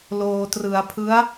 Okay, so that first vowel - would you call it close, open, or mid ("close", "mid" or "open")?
mid